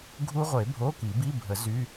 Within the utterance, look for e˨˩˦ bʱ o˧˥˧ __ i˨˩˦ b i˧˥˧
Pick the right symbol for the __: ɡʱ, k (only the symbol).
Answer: k